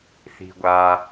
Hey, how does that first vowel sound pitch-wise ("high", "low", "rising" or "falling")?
low